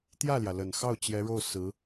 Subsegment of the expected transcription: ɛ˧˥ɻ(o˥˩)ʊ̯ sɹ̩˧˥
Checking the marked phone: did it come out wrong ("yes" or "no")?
no